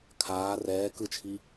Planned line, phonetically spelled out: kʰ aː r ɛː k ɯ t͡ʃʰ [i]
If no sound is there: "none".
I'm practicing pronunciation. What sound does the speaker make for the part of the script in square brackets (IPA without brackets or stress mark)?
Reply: i